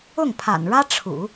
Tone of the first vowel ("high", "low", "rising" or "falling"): falling